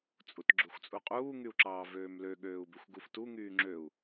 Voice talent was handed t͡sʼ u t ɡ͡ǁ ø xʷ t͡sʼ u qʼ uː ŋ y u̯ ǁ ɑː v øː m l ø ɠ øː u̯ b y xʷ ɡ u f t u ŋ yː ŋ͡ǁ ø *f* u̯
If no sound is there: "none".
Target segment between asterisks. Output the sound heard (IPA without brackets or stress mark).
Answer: none